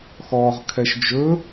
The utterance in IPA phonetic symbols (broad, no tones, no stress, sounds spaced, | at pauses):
x ɔː ʁ kʰ ɛ ʃ d͡ʒ ɵ